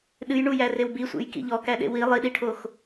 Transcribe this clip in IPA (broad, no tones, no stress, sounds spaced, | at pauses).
ɗ ɨ j ɳ u j æ r e w b i sʷ ḛ j k ḭ ʎ ɔ k æ ɗ ḛ w i lˠ i ɗ i ʈʰ o x